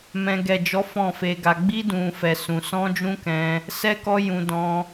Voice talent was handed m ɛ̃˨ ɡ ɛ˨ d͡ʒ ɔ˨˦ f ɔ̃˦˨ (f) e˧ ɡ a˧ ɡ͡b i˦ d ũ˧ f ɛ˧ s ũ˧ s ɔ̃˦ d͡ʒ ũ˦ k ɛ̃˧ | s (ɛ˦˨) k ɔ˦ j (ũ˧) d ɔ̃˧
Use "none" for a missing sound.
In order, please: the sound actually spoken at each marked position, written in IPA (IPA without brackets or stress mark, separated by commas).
f, ɛ˦, ũ˧